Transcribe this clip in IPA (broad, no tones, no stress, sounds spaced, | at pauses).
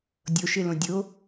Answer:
dʲ o ʃ ɪ l õ dʲ o